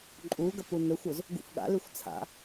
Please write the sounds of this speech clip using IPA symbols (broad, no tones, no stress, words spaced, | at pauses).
ǃʼuɡɐ punɵxʷoz | ɡṵfɠa̰lʉxʷ t͡sʰa̰